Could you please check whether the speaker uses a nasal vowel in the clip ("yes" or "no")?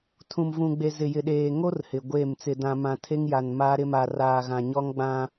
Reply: yes